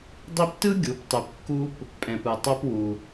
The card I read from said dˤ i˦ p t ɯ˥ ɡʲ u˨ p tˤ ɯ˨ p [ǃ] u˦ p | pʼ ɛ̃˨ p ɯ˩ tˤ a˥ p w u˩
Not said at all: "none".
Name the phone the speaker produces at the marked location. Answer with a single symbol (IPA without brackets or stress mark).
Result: kː